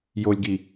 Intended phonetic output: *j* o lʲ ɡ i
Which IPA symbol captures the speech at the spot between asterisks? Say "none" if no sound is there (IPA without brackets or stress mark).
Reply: j